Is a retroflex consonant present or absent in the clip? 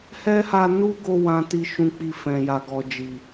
absent